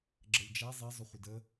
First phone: ɡ͡ǁ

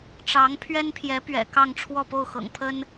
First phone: ʈ͡ʂ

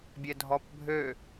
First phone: bʲ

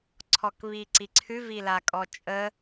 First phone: ǀʰ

